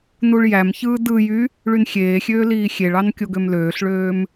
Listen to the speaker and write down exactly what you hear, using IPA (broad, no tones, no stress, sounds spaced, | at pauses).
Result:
n u ɭ j æ m ç ɯː d ɯ j y | ɭ y n xʲ eː xʲ øː l iː xʲ e ɭ ɑ n kʲ o ɡ ø m l øː ɬ ɭ øː m